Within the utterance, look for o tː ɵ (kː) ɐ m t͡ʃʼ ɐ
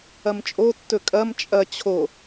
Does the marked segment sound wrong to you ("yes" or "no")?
yes